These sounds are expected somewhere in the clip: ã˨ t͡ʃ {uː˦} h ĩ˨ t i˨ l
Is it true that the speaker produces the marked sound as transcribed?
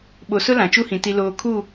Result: no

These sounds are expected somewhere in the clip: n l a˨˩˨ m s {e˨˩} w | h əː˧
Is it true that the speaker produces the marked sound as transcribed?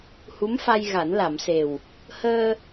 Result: yes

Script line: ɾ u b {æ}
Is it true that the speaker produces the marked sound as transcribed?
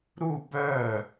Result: no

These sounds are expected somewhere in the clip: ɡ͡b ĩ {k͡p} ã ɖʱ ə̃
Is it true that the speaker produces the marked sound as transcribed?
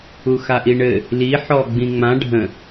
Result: no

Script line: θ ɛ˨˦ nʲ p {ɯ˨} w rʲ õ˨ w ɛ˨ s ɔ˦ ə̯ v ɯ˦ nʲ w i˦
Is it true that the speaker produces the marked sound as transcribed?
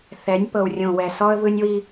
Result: no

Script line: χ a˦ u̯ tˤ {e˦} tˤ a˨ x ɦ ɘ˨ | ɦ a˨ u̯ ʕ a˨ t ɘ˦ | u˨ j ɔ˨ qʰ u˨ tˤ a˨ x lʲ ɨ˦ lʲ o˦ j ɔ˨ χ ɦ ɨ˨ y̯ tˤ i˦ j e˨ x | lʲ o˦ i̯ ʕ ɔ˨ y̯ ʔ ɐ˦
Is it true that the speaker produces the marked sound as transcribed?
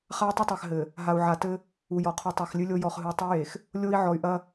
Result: no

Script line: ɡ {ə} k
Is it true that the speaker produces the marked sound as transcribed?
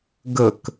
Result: yes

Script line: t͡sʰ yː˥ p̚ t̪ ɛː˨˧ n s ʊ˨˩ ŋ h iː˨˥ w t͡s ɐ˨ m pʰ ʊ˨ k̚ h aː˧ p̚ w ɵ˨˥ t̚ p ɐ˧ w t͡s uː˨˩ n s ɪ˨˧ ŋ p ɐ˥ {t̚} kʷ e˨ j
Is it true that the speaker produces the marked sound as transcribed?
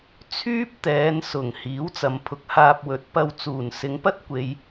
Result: yes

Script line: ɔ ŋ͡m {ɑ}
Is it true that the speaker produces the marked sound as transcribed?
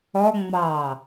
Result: yes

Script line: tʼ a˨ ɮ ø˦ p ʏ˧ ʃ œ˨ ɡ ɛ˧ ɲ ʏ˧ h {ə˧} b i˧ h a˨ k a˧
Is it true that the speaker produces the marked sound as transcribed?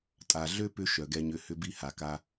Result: no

